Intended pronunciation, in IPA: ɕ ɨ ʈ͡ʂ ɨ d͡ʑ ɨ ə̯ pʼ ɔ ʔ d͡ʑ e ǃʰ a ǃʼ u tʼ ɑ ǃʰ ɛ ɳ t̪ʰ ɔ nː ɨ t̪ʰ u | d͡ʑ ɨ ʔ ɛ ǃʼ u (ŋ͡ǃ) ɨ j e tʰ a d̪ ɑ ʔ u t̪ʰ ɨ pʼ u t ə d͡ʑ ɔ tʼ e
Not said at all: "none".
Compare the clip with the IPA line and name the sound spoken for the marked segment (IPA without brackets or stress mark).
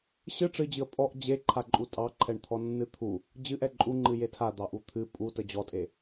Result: ŋ͡ǃ